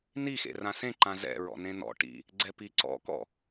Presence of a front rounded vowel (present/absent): absent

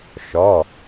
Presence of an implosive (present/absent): absent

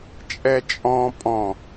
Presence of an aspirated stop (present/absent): absent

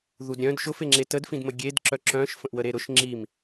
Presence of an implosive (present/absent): absent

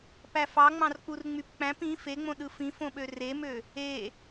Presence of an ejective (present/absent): absent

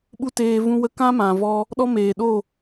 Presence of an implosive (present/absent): present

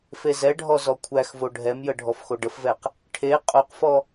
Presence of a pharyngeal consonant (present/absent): absent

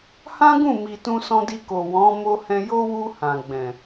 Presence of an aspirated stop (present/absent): absent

